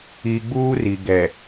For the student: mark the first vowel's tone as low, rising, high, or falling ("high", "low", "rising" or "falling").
low